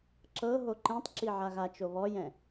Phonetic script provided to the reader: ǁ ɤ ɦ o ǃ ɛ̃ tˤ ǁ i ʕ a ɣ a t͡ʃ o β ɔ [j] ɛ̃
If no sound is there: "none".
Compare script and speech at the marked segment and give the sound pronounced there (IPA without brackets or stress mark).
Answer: j